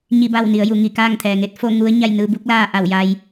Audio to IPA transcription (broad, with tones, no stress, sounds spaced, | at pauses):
ɲ i˥˨ b a˥˨ w n i˩˧ ə̯ j u˩˧ ŋ i˧˩ k aː˥˨ ŋ t̪ʰ ɛː˩ ŋ e˧ t̚ f o˥˨ ŋ u˧˥ ə̯ ɲ a˥˨ j n ɯː˧ b u˧˥ k̚ l aː˥˨ ʔ a˧˩ w j a˧ j